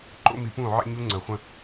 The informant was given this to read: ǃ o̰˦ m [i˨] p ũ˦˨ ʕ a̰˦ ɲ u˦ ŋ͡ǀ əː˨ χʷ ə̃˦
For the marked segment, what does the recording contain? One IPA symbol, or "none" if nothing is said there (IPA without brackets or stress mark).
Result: i˨